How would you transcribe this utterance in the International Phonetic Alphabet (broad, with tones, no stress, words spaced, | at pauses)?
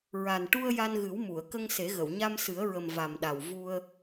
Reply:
ɹa˨˩nʈu˧ə̯ ja˧nɣɨ˨˩˦wmu˨˩˨ə̯ kə˧ŋse˨˩˦ɣə˨˩˨w ɲa˧msɨ˨˩˦ə̯ɹə˨˩m va˨˩mɗa˨˩w vu˧ə̯